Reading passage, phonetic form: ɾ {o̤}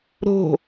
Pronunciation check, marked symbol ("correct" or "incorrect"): correct